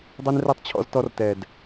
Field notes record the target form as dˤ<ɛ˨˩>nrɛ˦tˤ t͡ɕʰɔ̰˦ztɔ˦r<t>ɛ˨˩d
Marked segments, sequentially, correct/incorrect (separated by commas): incorrect, correct